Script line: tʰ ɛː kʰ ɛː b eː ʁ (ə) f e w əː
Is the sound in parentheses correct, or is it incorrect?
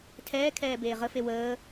correct